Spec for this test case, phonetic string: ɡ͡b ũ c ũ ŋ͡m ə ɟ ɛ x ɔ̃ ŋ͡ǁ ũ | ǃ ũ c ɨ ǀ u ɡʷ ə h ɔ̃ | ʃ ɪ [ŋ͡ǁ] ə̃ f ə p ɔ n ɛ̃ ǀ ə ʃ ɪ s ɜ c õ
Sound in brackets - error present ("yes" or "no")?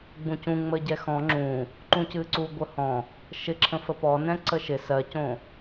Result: yes